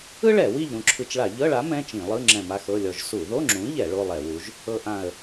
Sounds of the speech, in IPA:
ɯ˥ɭɛ˧˩˧wi˦˨ʎ ɾũ˦˨ǁʰɯ˧˩˧t͡ʃɭa˧˩˧ ʎɤ˧˥˧ɭa˨˥ mɛ̃˧˥˧t͡ʃĩ˧˩˧lˠɯ˧˥˧ ŋ͡ǁɛ̃˦˨ma˥xɤ˧˥˧lʲɔ˦˨ʒ su˧˩˧ðo˧˥˧ŋ͡ǁũ˨˥ʎɛ˧˩˧ ɭo˧˥˧lˠɛ˧˩˧wu˨˥ʒ | ɤ˥ʔã˦˨ə̯

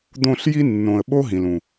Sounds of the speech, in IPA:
d̪õ˦˨ɬ ji˧nːõ˨ə̯ ɓo˦ɦĩ˨l ũ˨

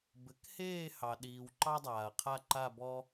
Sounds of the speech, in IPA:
bɘ˩˥kheː˦˨ hɑ˩ɗiː˩w ǃɑ˦dˤaː˩ɐ̯qʰa˦˨ ǃa˦˨bɔ˦

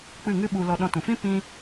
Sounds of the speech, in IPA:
k͡pɨ˦˨ŋɨ˦ɓu˧lɔ˧ ɗɔ̃˧tũ˨ fĩ˦ pĩ˧

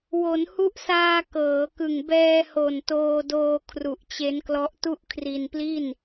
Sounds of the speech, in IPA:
wo˩˦nhu˦˥ʔsaː˧ kɤː˩˦kɯ˨˩ŋ bɛː˧ho˨˩n toː˧doː˧ kʰru˨˩ʔt͡ɕe˦˥nklɔ˦˥ʔ tu˥˩ʔkʰri˧npli˥˩n

